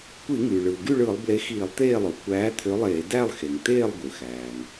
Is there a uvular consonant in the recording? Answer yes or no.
no